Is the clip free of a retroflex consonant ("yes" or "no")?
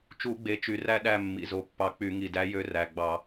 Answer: yes